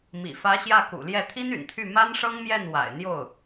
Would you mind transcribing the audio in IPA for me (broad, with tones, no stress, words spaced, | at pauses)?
mḭ˨˩fä˧˥ ɕjä˥˩kṵ˨˩ljɛ˥˩ t̪ʰi˥ny̰˨˩nt̪ʰy˥˩ ma˥nʂɤ˥ŋmjɛ˥˩n wa̰˨˩ɪ̯n̪jo˥˩ʊ̯